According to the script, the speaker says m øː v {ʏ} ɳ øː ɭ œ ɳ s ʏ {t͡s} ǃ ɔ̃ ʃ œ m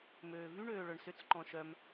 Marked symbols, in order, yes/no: no, yes

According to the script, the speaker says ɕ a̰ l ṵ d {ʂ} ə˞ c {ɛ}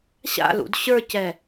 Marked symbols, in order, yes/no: no, yes

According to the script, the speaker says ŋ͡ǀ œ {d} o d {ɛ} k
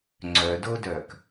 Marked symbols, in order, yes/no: yes, no

